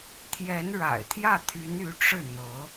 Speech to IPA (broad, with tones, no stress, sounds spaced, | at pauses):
t̪ʰ j ɛ˧˥ n ɻ a̰˨˩ ɪ̯ t̪ʰ j ä˥˩ t̪ʰ y˧˥ n y˧˥ ʈ͡ʂ ɻ̩˥˩ n̪ ɤ˧˥